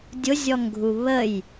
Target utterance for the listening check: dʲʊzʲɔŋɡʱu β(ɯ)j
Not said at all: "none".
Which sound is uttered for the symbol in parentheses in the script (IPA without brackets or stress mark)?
ə